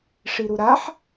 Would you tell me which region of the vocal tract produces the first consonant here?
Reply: retroflex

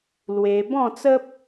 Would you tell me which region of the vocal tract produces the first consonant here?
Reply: tongue tip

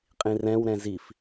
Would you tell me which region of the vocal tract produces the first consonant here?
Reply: uvula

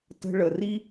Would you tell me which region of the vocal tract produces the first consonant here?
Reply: tongue tip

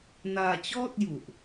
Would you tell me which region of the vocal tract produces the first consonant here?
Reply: tongue tip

